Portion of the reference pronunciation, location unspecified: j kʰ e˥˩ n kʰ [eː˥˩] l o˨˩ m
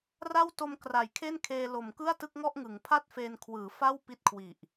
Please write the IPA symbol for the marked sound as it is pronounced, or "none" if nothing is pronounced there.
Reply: eː˧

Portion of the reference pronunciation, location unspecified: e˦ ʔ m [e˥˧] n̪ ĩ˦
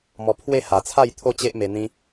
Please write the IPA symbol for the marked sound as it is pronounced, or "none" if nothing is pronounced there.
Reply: e˧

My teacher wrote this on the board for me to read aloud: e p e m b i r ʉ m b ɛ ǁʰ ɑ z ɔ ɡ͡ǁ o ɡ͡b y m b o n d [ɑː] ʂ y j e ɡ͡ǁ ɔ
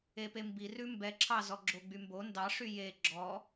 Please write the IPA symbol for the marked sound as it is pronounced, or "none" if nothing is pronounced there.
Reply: ɑ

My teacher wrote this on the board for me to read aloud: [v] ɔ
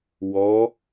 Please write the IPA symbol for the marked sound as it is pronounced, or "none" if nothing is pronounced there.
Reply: w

